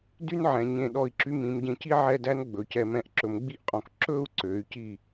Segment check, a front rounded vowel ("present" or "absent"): present